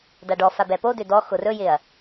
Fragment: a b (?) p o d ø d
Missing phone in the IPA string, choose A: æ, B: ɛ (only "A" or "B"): B